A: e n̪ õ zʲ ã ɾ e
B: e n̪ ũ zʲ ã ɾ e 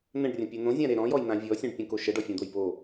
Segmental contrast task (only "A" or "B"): A